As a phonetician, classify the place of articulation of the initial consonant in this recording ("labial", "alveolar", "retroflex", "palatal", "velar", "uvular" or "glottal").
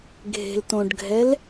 velar